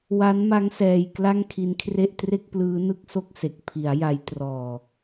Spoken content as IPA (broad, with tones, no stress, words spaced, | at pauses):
wa˦˥nma˦˥ŋsɛː˧j kla˥˩ŋkʰi˦˥nkʰre˥˩ʔ tre˥˩k̚plɯː˦˥nɯ˦˥k̚so˦˥k̚ se˨˩k̚ pʰi˩˦a̯ ja˦˥jtrɔː˧